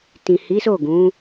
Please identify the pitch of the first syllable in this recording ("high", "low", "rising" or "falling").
low